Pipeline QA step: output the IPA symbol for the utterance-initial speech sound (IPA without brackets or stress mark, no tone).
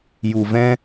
j